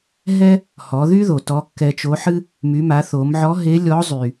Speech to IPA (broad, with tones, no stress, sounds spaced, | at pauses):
ɦ ɛ˥ | h ɔ˩˧ ð y˥ ð o˩ t ɔ˧˥ kː ɛ˧ t͡ʃ o˧˥ ħ ɨ˥ | m y˩˧ m a˩˧ θ o˩˧ m ʕ ɔ˧˥ ɦ e˧˥ lʲ ɔ˧˥ zˤ y˩